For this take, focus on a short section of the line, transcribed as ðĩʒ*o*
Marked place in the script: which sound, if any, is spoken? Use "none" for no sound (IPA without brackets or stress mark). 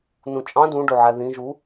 u